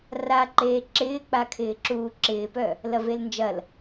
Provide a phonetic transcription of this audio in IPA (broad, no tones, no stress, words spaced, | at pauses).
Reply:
raǃeː ǁɪːk͡pakʰɪːǁuː ǁɪːpœ | lɐvelnd͡ʒɐl